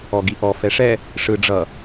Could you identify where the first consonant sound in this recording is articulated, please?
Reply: velar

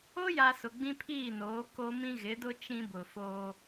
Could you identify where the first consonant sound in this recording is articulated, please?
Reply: palatal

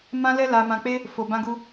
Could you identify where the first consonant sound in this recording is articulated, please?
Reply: labial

